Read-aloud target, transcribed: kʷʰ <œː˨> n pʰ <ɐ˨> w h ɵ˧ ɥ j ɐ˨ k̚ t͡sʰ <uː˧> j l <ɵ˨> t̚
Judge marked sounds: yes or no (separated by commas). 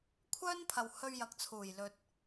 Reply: no, yes, no, yes